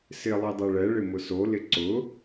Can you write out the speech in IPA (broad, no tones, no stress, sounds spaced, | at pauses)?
s ɪ lˠ i dˤ ɛ ɭ ɛ ɭ ɪ m ʊ s o l ɪ ǀ ʊ